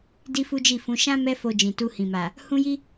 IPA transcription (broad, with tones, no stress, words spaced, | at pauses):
di˦fu˦d͡ʒi˦˨fũ˨˦ ʃã˦ mɛ˦fo˧ d͡ʒĩ˨tu˧hĩ˨ma˨ | hũ˦ji˦